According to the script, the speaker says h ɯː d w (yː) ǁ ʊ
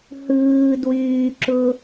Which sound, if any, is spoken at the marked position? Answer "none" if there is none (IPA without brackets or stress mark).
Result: yː